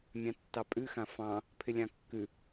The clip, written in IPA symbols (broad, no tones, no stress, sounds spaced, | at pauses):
mʲ ɑ̃ tː ɑ pʼ ʉ x ã f ɑ̃ | pʰ ɪ lʲ ɑ̃ kː ʉ